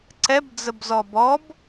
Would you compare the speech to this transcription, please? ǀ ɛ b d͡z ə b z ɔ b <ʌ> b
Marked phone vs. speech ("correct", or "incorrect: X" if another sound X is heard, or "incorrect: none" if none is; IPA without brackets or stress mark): incorrect: ɔ